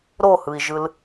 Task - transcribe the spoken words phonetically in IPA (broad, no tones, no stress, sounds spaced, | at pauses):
ɾ o h ɯ i̯ ʒ ɯ l